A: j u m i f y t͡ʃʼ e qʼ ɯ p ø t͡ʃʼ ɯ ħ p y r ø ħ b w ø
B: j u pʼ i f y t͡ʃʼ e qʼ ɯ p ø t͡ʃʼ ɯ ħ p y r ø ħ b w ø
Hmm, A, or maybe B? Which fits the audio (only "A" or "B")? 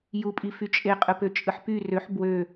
B